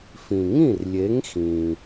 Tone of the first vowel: low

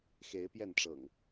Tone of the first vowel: rising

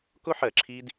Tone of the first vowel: high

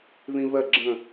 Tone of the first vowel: high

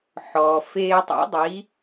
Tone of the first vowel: low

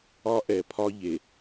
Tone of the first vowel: high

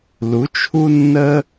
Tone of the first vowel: rising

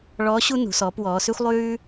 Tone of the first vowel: rising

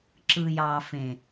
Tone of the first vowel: low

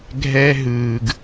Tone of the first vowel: high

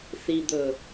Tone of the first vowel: low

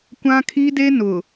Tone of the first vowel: high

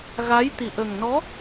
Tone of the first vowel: rising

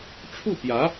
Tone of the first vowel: falling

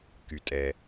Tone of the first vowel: low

